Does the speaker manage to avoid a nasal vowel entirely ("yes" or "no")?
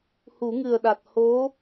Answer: yes